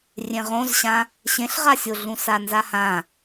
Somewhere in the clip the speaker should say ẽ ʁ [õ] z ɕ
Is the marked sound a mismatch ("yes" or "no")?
no